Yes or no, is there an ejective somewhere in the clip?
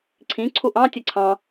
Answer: no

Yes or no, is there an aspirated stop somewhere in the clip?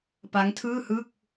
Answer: yes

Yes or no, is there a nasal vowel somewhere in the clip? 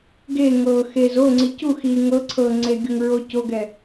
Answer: no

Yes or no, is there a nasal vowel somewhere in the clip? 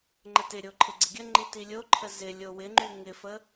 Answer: no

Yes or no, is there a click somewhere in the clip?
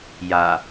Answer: no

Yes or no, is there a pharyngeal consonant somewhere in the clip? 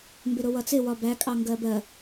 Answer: no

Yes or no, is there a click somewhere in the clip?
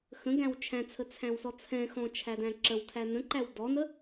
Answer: yes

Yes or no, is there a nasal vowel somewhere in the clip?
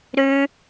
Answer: no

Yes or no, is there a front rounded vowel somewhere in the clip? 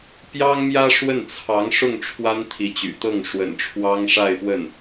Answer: yes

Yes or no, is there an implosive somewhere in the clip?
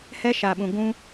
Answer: yes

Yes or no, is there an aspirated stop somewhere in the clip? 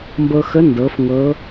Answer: no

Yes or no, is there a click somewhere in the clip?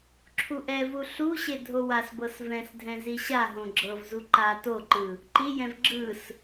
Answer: yes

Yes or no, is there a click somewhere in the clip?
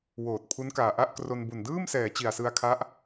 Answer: no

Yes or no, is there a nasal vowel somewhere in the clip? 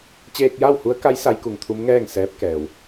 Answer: no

